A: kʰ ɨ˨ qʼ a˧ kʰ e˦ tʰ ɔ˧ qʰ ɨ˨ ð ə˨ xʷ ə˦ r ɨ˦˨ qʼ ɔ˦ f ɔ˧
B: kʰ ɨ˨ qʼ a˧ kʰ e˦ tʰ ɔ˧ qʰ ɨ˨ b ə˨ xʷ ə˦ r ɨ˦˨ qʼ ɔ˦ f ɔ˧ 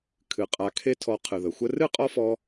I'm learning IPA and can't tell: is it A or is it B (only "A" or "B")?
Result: A